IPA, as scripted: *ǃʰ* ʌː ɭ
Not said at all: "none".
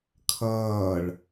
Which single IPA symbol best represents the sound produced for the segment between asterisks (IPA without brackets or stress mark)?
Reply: kʰ